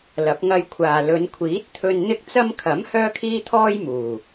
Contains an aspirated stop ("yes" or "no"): yes